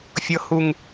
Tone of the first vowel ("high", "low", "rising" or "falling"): high